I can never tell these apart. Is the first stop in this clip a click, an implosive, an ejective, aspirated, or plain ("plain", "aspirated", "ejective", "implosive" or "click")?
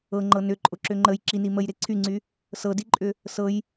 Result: click